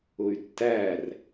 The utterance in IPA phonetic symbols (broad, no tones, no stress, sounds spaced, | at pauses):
ʊ y̯ tː æ r